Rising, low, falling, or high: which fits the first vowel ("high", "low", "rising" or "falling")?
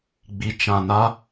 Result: low